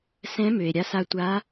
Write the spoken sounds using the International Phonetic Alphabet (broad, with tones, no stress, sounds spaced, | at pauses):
s ɛ̃˧˥ m ø˩ e̯ ɾʲ a˧˥ s a˧ tʷ a˧˥